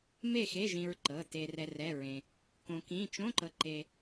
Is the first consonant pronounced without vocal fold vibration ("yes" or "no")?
no